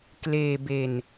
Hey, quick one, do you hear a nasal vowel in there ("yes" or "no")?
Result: no